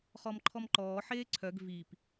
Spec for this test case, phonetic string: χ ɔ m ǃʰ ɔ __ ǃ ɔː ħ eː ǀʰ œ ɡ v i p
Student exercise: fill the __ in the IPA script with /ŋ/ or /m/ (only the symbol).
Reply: m